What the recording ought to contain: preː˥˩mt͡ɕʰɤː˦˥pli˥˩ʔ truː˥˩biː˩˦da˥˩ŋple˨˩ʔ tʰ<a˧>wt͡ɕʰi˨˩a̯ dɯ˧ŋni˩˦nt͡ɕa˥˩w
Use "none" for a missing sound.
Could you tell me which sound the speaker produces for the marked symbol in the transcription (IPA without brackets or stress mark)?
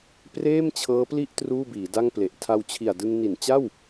a˧